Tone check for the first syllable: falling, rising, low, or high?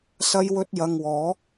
high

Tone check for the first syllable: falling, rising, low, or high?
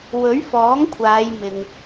rising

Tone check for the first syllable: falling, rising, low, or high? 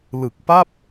low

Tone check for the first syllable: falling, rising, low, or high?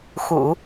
low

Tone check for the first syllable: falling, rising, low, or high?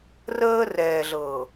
high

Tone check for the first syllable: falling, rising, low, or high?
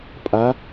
rising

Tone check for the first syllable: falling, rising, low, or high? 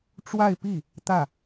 falling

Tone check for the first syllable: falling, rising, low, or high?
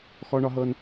high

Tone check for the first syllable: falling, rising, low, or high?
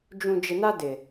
low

